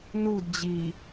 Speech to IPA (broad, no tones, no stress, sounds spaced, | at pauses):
n u d d͡ʑ i